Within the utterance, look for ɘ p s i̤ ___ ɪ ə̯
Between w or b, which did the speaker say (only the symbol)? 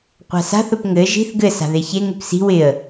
w